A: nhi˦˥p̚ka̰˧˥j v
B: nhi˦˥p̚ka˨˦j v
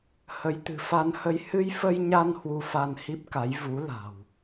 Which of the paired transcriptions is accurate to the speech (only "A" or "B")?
B